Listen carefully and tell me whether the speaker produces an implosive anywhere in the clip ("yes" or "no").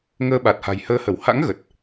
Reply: yes